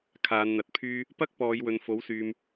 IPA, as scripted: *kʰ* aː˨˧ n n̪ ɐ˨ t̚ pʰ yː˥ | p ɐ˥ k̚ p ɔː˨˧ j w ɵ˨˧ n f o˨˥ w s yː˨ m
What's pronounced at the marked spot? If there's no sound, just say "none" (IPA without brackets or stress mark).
kʰ